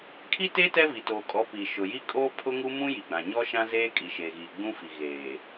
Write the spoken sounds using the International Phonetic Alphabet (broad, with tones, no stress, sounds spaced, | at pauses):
kʰ i˦ t e˦ t ɛ˦ v i˨ t oː˨ kʼ ɔ˨˦ p i˨ ʃ ʊ˨ j i˦ kʼ oː˦ pʰ ʊ˦ ŋ u˦ m ũ˦ j i˨ ɡ͡b ã˨ ɲ ɔ˦ ʃ ã˦ z eː˦ kʼ i˨ ʃ eː˨ ɣ iː˨ ɡ͡b ũ˦ f i˨ ɣ eː˨